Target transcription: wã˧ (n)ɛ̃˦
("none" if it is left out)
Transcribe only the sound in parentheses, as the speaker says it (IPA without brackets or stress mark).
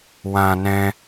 n